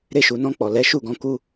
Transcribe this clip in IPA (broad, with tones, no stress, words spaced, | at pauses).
ɾe˧ʃu˨nɔ̃˧k͡pɔ˨ lɛ˨˦ʃu˦˨ɡɔ̃˨˦ ku˦